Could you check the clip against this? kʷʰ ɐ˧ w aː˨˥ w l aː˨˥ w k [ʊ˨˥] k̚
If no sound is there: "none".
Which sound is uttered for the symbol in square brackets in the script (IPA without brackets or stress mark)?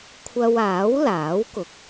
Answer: ʊ˨˥